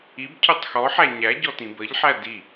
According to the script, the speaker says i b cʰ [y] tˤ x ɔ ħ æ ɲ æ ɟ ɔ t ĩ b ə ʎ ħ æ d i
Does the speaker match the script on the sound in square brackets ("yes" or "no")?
yes